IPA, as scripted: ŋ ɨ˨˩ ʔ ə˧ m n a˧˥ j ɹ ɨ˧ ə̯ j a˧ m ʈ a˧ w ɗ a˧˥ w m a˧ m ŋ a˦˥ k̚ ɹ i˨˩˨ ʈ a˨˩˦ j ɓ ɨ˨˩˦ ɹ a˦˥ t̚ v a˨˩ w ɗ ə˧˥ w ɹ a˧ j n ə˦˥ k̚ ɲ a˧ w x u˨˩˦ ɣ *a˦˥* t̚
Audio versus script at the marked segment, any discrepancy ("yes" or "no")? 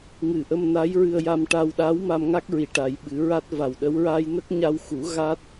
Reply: no